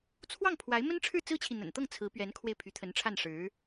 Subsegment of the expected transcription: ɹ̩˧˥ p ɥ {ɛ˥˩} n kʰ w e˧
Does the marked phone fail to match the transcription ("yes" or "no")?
yes